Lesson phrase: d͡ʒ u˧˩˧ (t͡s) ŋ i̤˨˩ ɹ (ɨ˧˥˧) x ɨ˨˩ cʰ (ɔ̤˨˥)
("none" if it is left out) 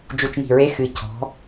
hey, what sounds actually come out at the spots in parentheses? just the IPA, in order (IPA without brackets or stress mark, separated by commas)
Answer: t͡ʃ, e˧˥˧, ɔ̤˨˥